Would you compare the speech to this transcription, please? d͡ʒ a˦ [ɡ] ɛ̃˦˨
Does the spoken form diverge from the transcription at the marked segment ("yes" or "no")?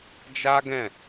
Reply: no